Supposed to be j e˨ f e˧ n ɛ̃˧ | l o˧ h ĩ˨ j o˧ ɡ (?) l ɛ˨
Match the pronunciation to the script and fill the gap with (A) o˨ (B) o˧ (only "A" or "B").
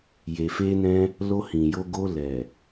B